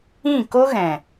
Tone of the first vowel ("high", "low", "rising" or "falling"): falling